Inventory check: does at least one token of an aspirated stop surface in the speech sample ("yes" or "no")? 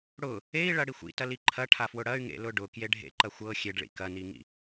yes